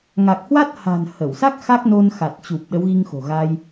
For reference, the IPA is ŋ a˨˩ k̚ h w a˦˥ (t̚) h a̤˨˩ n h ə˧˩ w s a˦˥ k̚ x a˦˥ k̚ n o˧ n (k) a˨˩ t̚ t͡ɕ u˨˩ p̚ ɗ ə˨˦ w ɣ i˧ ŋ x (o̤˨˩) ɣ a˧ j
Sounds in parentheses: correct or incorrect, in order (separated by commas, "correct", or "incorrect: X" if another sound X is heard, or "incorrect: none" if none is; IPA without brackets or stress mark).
correct, incorrect: x, correct